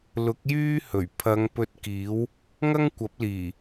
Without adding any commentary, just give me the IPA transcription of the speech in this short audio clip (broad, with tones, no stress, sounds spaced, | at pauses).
l ʊ˨˥ k̚ j yː˥ h ɵ˨˩ ɥ pʰ ɐ˨˧ ŋ p ɵ˧ t̚ k iː˨˥ w | ŋ ɐ˥ ŋ kʷ ɐ˨˥ p̚ l iː˨˩